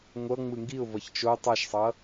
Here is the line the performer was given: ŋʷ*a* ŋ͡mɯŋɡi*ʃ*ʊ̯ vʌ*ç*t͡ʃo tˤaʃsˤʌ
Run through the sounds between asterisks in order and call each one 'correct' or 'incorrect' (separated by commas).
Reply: incorrect, incorrect, correct